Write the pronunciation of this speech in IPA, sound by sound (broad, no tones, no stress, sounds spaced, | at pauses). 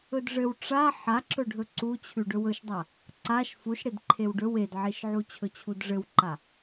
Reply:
ɵ d ʐ ɘ w ʈ͡ʂ a ħ a ǁ ɵ ɖʱ ɵ ǀ u t͡ɕʰ ʉ ɖ ɵ w ɵ ʃ dˤ a | ǀ a ʃ f u ʃ ɽ e d ǃʰ e w ɖ ɵ w e d ʕ e ʃ ʕ u t͡ɕʰ ɵ t͡ɕʰ u d ʐ ɘ w ǃ a